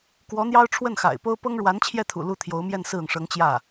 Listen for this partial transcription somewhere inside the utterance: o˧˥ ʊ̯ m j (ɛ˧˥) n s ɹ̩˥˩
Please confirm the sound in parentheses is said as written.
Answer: no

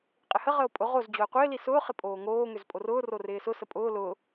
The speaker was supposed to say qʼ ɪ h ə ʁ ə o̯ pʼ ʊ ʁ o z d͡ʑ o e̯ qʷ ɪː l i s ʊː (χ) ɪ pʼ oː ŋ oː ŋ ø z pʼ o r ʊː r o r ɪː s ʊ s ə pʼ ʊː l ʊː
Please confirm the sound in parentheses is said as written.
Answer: yes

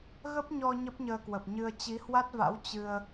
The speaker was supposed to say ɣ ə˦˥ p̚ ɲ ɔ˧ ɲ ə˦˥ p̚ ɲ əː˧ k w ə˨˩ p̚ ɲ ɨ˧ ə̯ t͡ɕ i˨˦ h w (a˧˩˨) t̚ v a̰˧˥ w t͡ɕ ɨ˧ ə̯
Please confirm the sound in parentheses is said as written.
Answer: no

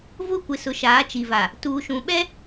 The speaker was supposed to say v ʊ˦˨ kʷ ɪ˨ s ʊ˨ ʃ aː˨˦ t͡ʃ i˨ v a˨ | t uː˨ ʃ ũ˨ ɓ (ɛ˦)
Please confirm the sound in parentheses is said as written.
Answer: yes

